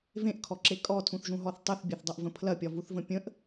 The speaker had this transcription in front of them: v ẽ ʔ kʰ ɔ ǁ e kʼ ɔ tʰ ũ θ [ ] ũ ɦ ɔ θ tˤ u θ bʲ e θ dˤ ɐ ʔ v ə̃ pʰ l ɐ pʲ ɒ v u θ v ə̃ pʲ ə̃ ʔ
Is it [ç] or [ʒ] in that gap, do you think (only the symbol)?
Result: ʒ